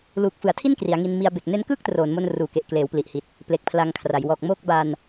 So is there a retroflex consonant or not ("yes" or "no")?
no